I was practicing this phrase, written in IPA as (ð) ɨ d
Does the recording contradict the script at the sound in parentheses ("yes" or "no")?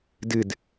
yes